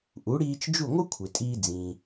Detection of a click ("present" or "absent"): absent